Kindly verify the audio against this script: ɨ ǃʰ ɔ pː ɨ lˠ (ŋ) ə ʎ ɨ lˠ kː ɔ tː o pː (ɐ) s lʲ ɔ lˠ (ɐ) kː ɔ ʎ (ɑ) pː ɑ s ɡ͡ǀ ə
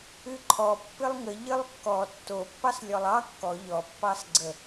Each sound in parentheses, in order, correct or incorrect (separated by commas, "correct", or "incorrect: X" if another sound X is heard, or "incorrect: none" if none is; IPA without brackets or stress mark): correct, incorrect: ɑ, incorrect: ɑ, incorrect: ɔ